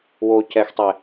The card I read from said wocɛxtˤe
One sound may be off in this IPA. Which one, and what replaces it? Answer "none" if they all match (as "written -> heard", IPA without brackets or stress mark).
none